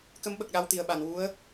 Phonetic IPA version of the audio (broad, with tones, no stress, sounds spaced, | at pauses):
k ə˧˥ m ɓ ə˨˩ k̚ ɗ a˧ w t̪ i˨˩ ə̯ ɓ a˨˩˨ n w u˧˥ ə̯